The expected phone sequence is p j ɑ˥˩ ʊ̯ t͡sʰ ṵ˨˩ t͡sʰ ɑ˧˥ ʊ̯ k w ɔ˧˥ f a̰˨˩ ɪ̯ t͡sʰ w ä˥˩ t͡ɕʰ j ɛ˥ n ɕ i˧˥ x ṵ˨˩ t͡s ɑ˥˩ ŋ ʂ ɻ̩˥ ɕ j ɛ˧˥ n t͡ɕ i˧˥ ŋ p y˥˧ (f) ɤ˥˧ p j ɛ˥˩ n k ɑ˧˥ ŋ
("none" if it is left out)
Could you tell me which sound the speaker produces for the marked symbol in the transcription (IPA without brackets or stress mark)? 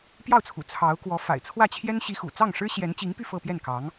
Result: f